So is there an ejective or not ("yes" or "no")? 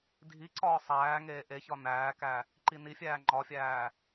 no